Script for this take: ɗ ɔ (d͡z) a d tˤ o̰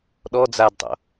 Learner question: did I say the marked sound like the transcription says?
yes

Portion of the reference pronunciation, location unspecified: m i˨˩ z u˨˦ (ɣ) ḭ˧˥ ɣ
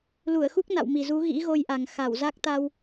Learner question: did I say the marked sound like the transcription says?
yes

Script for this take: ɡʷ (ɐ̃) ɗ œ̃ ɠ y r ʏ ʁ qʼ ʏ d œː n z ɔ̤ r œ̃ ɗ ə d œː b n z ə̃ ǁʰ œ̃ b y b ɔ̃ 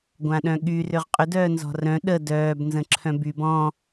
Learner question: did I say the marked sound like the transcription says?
no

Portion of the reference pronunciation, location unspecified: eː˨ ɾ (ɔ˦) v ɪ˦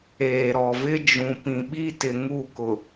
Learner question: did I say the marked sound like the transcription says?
no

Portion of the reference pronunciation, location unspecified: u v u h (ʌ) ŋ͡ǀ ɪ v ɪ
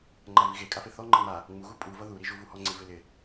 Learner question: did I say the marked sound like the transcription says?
no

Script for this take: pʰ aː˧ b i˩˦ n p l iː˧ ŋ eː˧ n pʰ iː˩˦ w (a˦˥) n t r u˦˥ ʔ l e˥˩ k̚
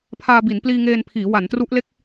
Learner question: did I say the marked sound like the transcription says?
no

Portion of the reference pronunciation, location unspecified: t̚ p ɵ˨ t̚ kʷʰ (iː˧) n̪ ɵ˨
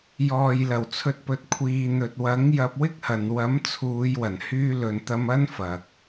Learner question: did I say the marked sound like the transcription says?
no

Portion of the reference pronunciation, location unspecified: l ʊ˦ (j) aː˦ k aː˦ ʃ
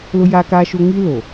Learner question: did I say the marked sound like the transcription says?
yes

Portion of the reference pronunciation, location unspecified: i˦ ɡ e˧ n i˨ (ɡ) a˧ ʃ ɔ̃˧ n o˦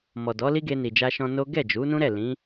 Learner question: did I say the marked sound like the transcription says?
no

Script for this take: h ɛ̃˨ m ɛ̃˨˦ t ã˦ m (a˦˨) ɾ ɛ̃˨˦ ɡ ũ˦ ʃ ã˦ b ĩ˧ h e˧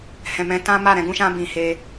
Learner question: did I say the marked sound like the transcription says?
yes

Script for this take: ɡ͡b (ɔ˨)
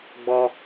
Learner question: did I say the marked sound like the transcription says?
no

